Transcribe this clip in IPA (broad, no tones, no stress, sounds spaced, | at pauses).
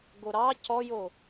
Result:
ɡ o ɾ ɑ c ɔ j o